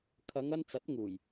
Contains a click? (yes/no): no